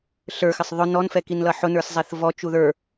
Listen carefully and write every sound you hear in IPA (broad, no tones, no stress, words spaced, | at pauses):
ɬə˞xɪsˤ ðˤʊ nɔnfɛkinlʌ ħʊnə˞s zˤɛθvɔ t͡ʃuðə˞